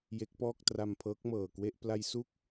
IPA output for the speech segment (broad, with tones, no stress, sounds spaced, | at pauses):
j e˦˥ k̚ p ɔː˥˩ k̚ t r a˧ m pʰ ɤː˦˥ k̚ m ɤː˨˩ k w e˥˩ ʔ p l a˧ j s u˥˩ k̚